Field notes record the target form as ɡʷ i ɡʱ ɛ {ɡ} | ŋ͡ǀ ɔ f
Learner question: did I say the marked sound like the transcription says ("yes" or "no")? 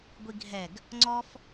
yes